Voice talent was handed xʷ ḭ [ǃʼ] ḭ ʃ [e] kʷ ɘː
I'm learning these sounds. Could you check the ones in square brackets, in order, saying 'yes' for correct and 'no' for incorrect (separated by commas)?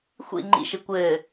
no, no